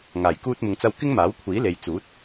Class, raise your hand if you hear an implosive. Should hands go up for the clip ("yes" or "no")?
no